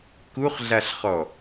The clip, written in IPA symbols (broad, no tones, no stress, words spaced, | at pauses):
kuχɮaɬχɔ